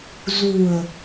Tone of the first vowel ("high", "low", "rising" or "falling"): low